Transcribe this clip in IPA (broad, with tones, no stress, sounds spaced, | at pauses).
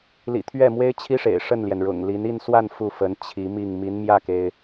l ḭ˨˩ t̪ʰ ɥ ɛ˥˩ m w e˥ ɪ̯ t͡ɕʰ i˥ ʂ ḛ˨˩ ɪ̯ ʂ ə˥˩ n l j ɛ˩ n ɻ ʊ̰˨˩ ŋ l i˧˥ n i˥˧ n s w a˥˧ n f u˥˩ f ə˧˥ n t͡ɕʰ i˧˥ m i˥˩ ŋ m i˧˥ n m j ä˥˩ k e˩ ɪ̯